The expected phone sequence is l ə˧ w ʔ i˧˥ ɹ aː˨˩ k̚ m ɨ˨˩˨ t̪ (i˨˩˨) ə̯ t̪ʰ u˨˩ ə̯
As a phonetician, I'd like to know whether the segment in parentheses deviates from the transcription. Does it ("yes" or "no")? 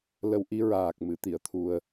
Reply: no